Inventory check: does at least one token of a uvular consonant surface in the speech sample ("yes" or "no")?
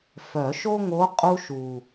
yes